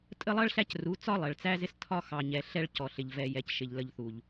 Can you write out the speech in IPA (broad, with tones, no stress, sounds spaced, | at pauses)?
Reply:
tʼ ə˦ lˠ ʌ˦ ɭ ɬ æ˦ c r u˨˦ t͡s ɒ˦ lˠ ɜ˨ ɭ t͡s æ˦ z ɪ˦ s tʰ ɒ˦ x ɑ˨ ɲ ɛ˨ ɬ ɛ˦ ɭ c ɔ˨ ɬ ɪ˨ ʎ v ɛ˨ j ɛ˨ c ʃ ɪ˨ ʎ l ə˨ ʎ θ u˨ ʎ